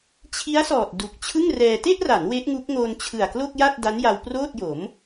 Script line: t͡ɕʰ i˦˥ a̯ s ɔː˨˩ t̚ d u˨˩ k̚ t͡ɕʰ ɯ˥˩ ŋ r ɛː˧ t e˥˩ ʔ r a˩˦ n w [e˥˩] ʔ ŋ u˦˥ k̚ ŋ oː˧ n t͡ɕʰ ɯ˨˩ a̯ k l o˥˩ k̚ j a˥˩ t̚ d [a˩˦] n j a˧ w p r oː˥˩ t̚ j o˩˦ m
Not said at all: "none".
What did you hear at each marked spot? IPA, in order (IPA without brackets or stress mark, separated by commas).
e˦˥, a˦˥